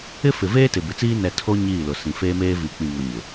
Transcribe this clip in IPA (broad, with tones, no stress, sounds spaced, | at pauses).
ɪ˦ f ɪ˨ v eː˦ t ɪ˨ b ɪ˨˦ t͡s iː˦ n ɛ˨ tʰ o˦ ɲ iː˦˨ l ʊ˨ s ĩ˨ f eː˦ m eː˦ v i˨ k͡p ĩ˨ ŋ ʊ˨ ɲ ɪ˨